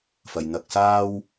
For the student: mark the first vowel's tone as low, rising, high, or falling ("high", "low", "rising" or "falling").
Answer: low